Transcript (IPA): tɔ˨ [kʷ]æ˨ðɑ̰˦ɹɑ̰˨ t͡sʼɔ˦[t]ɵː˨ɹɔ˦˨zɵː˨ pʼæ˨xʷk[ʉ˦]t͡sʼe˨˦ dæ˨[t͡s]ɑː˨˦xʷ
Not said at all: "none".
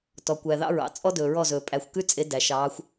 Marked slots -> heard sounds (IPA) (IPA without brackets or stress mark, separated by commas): kʷ, d, ʉ˦, ʃ